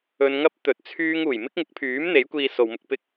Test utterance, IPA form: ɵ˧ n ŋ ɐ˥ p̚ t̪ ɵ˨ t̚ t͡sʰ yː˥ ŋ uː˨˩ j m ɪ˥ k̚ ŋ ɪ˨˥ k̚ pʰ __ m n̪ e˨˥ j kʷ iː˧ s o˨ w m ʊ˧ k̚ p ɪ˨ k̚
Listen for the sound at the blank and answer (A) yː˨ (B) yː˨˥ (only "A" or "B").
B